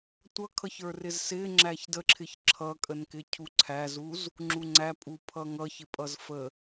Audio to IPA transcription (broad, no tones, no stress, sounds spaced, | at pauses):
tʷ ʌ kʰ ʌ ç ə˞ r ɪ z s ɪ ŋ͡ǁ æ ç d ə ǁʰ ɪ ç ǁʰ ʌ kʼ ə n k ɪ cʰ u ǀʰ æ z u z | ŋ͡ǁ u ŋ͡ǀ æ pʼ u pʰ ʌ ŋ ʌ ç ɪ pʼ ʌ z f ə